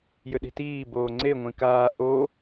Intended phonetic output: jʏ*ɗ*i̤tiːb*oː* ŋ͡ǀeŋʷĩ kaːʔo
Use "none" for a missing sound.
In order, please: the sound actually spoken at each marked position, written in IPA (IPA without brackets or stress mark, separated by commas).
ɗ, oː